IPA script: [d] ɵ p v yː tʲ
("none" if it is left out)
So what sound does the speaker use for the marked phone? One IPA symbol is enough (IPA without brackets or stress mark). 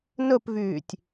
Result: n